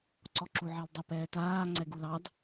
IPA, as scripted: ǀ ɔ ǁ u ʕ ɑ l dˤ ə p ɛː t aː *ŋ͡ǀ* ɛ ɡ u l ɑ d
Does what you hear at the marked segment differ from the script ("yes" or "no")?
no